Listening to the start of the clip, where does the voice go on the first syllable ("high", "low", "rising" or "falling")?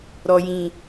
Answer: low